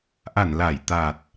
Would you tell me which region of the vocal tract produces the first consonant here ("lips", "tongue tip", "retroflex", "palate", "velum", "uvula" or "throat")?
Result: throat